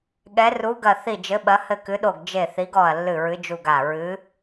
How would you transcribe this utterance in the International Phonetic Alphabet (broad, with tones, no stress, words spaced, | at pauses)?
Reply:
ɠɛ˧˥ru˧˥ɡɐ˦˨ θi˦˨d͡ʒɘ˧˥ɓɐ˧˥ hɘ˦˨kɨ˧˥ɗo˦˨ɡ d͡ʒe˦˨θi˧˥ɡɔ˦˨ɐ̯ lːɨ˦˨ɹɨ˧˥d͡ʒu˦˨ɡ a˦˨ ɹɨ˧˥